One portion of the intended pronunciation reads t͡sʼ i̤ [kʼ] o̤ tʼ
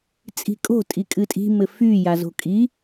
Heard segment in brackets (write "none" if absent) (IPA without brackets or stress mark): kʼ